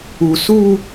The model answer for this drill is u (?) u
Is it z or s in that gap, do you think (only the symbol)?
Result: s